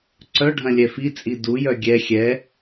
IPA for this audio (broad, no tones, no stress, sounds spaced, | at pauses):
ǀ œ ɖʱ ɐ̃ lʲ ɛ f i t͡sʼ i d u j œ ɡʲ ɛ xʲ ɛ